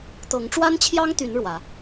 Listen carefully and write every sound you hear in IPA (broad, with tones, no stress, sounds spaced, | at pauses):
t̪ ɤ˨˦ ŋ ʈ͡ʂ w a˦ n t͡ɕʰ j ɑ˦ ŋ t̪ y˨˦ n ɻ w ä˨˦